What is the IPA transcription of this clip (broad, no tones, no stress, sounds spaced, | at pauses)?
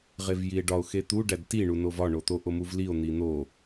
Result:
ʁ e v j i e̯ ɖ ɒ o̯ x e t̪ u ɖ æ d t i ɳ u n o v ɒ ɳ o t̪ o ʔ o m u v l i o̯ n̪ i n̪ o